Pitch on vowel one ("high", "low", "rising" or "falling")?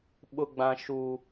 high